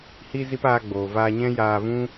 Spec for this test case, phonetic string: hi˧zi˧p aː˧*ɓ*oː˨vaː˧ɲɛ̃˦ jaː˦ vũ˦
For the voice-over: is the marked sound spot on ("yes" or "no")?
no